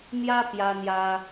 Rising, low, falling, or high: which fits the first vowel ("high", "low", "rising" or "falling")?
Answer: high